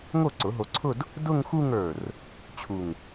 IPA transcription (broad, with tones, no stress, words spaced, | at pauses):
ŋo˥˩ǀʊ˩˥ɦo˧ǀʰʊ˥˧d | dʊ˥˧ŋxu˥˧ŋə˞˧˩r | t͡ɕʰu˧˩ŋ